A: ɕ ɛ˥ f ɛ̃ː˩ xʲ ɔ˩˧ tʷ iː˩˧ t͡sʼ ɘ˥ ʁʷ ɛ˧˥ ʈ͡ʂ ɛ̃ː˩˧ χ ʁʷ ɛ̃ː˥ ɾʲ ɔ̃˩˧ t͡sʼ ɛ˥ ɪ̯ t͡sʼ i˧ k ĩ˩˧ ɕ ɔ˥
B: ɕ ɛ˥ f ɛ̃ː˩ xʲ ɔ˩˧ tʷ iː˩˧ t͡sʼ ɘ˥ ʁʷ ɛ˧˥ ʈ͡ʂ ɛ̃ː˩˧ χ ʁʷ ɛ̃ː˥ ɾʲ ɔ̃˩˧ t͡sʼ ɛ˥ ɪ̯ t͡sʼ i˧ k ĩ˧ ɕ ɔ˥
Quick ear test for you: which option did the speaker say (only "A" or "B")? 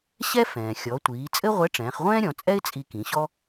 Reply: A